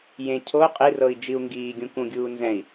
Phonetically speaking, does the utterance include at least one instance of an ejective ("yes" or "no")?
yes